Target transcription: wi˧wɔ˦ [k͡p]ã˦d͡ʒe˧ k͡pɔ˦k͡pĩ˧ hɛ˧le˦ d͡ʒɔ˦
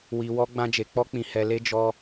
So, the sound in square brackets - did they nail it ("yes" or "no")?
no